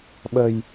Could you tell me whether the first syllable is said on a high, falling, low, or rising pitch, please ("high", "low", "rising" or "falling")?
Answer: low